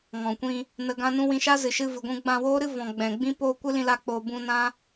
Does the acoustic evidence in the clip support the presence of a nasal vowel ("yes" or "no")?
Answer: yes